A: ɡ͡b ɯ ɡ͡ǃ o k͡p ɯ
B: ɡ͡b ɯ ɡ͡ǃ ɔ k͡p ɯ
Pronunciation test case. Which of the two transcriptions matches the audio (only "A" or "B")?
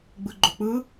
A